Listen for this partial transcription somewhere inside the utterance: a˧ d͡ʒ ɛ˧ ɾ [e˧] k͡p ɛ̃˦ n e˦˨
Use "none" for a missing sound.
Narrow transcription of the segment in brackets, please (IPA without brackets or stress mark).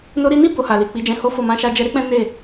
e˦